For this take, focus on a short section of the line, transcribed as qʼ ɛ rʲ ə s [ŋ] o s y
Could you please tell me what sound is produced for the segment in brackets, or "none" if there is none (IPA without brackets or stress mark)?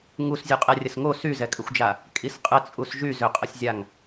ŋ